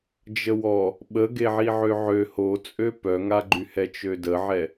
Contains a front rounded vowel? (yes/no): yes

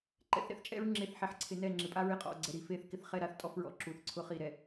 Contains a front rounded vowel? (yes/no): no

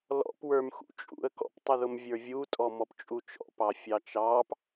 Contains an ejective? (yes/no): yes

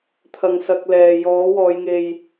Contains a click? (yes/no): no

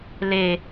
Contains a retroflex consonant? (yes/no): no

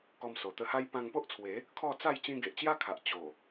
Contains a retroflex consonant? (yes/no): no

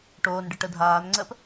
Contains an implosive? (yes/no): no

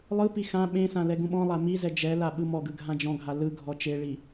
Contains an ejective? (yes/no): no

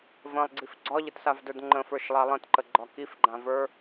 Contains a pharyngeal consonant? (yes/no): no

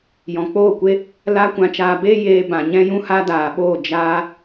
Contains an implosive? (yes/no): yes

